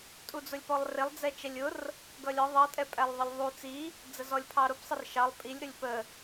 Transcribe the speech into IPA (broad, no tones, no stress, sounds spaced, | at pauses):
tʼ u d͡z ʊ lʲ p ɔ lˠ r ɪ lˠ d͡z ɛ t͡ʃ ɛ lʲ ʊ r | ɡ ʌ lʲ ɒ ðˤ ʌ tʼ ɛ pʼ æ lˠ ðˤ ʌ lʲ ðˤ u t͡s i | d͡z ə z ɔ lʲ pʰ ɑ ɾ ʊ p sˤ ɪ r ʃ ɑ lˠ pʼ i lʲ ɾ ʊ lʲ p ə